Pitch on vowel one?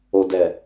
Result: low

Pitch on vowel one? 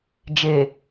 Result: low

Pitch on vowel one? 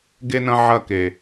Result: high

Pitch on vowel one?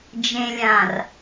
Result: low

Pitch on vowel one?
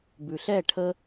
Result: low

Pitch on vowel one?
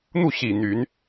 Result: falling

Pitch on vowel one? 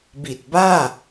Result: low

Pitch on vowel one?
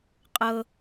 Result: high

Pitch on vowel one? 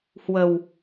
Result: low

